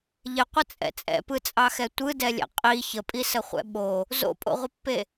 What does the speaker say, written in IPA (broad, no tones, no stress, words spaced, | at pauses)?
ʎɪqʷət͡sʼɛ̰ t͡sʼɛ̰pɯt͡sʼɑxɛ tʷɯdɛlʲɛ̰ qʼi çəpʼisəχʷɛ̰ ɓo | zo̰pʼo̰ʁʷɪpːe